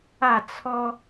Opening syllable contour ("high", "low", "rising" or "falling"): falling